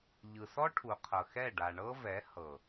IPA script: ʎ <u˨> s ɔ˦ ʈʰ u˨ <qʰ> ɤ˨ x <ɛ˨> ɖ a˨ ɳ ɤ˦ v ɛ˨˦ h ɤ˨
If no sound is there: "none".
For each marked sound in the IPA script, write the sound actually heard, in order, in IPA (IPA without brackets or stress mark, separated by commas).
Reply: ɯ˨, qʰ, ɛ˦˨